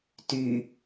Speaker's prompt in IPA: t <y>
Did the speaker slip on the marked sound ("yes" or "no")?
no